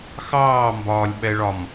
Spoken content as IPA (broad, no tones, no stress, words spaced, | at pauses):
xɑːmbɒːlʲɓɛɭɒm